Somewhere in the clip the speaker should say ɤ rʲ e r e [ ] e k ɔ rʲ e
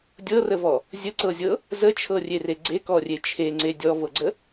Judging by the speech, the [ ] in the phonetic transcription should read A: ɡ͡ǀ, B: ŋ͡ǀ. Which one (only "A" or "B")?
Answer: A